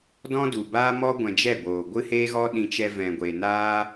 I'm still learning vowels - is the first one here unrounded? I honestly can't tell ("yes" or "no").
no